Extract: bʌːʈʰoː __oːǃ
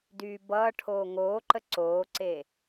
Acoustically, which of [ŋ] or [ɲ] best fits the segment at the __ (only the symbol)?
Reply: ŋ